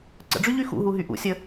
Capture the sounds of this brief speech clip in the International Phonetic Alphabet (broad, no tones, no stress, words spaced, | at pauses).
ǀə̰ɖ͡ʐyʎy xṵɦuɦy ʔṵsʲə